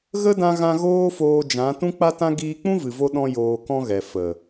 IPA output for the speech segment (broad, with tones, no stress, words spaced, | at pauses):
ɣə˦dã˧ɣã˧ ɣoː˦foː˧ d͡ʒã˨˦ tũ˦k͡pa˦tã˦ ɡiː˧k͡pũ˦vɨ˨vo˧ ɗɔ̃˦joː˧kɔ̃˦ɣɛ˨ fə˨